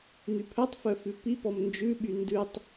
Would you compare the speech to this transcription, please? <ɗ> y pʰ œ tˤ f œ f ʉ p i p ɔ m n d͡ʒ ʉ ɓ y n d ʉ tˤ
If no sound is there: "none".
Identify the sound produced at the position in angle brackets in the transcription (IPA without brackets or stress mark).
n̪